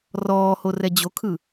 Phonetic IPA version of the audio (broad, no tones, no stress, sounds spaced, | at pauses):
r ɔː h o r ɛ d͡ʑ o kʰ ɯ